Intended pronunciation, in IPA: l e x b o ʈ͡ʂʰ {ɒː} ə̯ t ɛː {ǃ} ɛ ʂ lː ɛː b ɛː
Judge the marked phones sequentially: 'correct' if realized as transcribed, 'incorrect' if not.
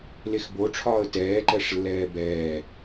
correct, correct

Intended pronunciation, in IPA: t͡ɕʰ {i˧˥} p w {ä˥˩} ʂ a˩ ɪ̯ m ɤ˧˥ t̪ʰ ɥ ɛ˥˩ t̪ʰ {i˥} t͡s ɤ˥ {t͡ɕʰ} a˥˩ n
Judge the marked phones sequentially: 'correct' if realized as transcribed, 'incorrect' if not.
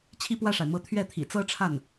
incorrect: i˥˧, correct, incorrect: ḭ˨˩, incorrect: ʈ͡ʂʰ

